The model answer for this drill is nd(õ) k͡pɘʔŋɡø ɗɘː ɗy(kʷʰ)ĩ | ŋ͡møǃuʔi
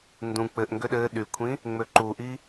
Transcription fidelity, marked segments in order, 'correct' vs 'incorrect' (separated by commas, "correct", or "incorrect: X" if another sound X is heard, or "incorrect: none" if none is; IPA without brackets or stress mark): incorrect: ũ, correct